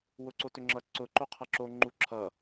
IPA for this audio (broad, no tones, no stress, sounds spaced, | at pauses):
w ʊ ǀ o t ʏ ŋ͡ǁ ʌ ǀ ʊ ǃ o qʰ ʌ ǁ o ŋ͡ǃ u ǁʰ ʌ